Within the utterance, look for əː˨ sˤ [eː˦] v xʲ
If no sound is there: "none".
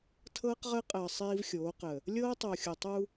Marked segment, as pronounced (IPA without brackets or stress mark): iː˦